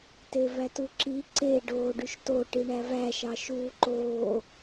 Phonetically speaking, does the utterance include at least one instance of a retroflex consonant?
yes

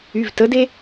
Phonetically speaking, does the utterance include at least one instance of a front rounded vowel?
yes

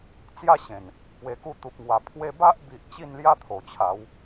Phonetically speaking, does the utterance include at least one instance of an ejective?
no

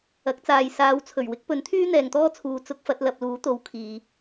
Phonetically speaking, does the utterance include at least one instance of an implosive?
no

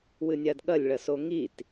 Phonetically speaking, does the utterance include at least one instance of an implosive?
yes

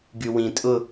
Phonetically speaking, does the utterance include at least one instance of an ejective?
yes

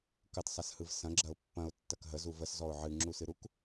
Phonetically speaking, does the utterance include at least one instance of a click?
yes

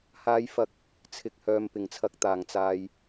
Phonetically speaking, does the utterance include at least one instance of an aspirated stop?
yes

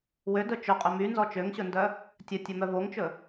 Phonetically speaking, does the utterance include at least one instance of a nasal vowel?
no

